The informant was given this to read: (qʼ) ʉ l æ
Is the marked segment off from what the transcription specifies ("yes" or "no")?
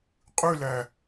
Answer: no